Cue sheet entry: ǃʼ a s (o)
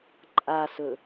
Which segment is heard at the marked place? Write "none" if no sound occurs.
ɵ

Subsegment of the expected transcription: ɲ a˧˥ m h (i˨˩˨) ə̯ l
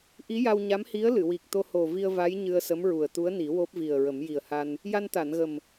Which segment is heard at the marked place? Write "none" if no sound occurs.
i˧˥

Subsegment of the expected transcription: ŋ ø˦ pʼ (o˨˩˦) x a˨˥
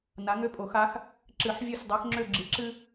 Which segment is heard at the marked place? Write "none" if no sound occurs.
o˨˩˦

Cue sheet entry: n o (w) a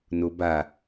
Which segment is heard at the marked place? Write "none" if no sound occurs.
b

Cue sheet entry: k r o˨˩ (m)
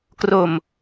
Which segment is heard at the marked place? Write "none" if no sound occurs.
m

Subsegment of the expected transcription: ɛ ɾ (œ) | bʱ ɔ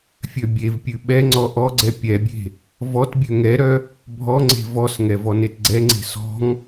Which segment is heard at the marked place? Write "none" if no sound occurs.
œ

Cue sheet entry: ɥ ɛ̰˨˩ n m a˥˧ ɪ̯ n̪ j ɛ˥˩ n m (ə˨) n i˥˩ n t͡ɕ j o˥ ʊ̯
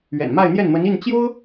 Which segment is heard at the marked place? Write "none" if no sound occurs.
ə˧˥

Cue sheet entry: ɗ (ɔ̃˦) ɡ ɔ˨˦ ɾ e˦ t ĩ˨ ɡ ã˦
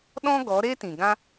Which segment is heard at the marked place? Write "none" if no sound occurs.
ɔ̃˦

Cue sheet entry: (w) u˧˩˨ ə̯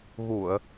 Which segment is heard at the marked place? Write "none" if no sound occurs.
ɣ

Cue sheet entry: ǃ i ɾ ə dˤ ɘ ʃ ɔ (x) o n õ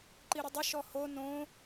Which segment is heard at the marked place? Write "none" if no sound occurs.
h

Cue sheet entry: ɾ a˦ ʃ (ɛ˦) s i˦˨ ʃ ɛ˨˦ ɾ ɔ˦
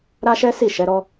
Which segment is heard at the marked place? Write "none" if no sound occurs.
ɛ˦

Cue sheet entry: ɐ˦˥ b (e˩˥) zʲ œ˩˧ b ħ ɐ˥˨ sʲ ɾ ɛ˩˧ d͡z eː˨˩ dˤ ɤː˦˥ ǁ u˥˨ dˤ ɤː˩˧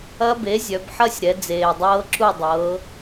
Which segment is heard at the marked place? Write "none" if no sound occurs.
e˩˥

